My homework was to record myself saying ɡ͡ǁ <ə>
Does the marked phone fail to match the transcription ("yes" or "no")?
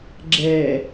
yes